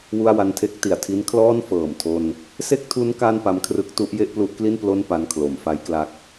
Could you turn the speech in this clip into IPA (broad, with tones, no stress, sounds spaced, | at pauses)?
w u˥˩ a̯ w a˧ n tʰ e˦˥ k̚ t i˨˩ a̯ tʰ i˦˥ n kʰ l ɔː˥˩ n f ɤː˨˩ m tʰ o˧ n | s e˥˩ k̚ tʰ u˦˥ n k a˥˩ n p a˦˥ m kʰ r ɯ˦˥ k̚ t u˦˥ ʔ j e˥˩ ʔ p l u˦˥ ʔ k l i˥˩ n p l o˥˩ n p a˧ n kʰ l o˩˦ m f a˦˥ j k l a˦˥ k̚